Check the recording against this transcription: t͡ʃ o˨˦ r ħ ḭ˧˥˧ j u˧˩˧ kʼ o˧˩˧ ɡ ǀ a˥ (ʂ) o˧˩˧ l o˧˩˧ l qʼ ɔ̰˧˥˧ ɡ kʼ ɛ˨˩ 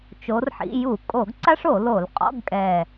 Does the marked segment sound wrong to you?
no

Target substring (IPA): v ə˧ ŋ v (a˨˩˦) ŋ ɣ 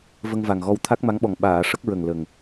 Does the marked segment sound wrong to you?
yes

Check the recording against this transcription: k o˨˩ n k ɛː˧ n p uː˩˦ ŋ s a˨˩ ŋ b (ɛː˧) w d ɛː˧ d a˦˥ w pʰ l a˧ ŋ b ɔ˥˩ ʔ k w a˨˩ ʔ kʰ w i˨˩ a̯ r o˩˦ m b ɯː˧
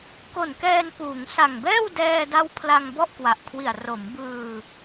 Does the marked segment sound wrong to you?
yes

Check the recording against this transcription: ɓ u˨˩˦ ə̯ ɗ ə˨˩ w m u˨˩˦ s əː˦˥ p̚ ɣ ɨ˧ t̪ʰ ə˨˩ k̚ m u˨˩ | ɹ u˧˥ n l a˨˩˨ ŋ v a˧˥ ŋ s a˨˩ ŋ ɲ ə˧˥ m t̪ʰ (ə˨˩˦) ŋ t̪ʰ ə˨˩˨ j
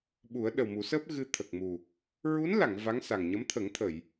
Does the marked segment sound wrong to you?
no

